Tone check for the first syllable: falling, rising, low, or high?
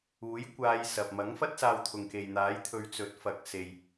rising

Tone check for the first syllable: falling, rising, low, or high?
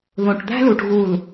low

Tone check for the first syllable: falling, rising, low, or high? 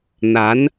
rising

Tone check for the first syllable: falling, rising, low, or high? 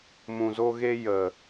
low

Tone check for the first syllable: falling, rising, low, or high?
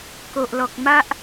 low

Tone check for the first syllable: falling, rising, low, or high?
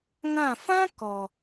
falling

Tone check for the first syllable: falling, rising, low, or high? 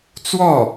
falling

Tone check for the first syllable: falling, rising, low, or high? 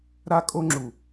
high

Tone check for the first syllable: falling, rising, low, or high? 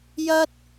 high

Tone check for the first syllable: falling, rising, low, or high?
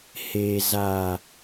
low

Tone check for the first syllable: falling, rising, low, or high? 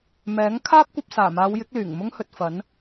rising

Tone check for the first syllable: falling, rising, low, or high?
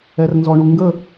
low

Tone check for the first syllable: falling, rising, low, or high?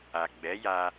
low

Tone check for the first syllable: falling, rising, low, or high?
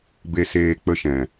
low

